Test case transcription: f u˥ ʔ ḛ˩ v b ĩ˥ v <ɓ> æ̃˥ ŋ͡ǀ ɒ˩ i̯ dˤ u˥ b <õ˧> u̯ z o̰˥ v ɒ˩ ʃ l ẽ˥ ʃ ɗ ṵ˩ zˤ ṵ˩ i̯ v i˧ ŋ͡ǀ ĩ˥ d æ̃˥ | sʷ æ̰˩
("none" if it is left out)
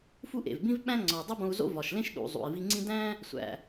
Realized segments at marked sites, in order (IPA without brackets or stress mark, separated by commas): ɓ, õ˧